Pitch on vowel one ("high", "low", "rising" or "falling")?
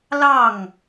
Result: falling